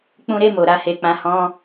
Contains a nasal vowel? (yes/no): yes